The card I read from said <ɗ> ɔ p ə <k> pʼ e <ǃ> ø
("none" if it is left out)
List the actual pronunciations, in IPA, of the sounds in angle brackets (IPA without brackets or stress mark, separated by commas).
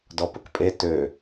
d, k, t